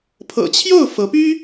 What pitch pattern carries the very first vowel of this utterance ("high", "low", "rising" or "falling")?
low